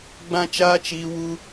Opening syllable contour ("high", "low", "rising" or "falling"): high